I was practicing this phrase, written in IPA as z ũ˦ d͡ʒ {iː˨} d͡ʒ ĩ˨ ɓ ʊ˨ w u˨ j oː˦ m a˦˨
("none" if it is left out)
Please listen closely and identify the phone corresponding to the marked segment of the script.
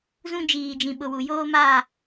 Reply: iː˨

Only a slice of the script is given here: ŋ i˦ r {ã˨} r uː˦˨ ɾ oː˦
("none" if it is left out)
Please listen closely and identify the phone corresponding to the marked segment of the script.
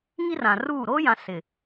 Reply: ã˨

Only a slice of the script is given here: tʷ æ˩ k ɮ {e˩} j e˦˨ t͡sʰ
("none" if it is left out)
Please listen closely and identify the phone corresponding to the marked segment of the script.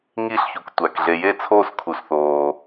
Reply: e˩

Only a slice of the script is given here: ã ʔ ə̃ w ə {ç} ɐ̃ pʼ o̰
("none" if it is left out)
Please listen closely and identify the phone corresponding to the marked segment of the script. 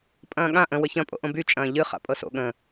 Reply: ç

